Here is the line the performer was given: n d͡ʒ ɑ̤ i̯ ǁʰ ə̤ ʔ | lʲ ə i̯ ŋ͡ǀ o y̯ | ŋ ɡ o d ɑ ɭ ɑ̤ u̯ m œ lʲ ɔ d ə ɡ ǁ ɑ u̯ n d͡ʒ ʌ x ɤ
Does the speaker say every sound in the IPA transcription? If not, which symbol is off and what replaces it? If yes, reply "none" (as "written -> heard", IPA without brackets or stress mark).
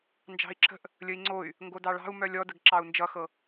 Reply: none